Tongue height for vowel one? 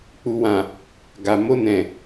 high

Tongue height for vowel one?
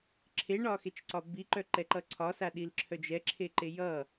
mid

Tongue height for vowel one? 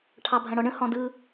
low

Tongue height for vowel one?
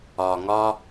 low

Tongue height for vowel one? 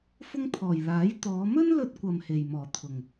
high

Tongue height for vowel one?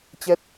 mid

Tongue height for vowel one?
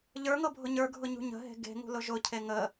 mid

